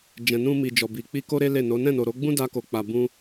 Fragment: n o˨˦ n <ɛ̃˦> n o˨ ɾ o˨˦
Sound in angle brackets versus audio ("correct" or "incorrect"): incorrect